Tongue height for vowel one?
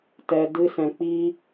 mid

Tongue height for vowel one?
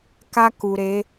low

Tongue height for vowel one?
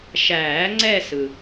low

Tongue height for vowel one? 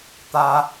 low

